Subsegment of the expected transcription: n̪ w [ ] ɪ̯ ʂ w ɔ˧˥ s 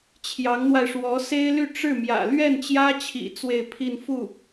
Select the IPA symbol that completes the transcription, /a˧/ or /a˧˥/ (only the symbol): a˧